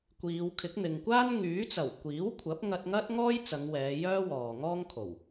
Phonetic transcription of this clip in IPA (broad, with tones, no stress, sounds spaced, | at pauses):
kʷ iː˨˧ w kʰ ɪ˨˥ k̚ n̪ ɪ˨ ŋ kʷ aː˥ n ŋ yː˨˥ t͡s ɐ˨˩ w kʷ iː˨˥ w kʷʰ ɐ˨˥ p̚ ŋ ɐ˧ t̚ ŋ ɐ˥ t̚ ŋ ɔː˥ j t͡s ɐ˨˧ ŋ w ɛː˨˧ j œː˥ w ɔː˨ ŋ ɔː˥ ŋ kʰ o˨˩ w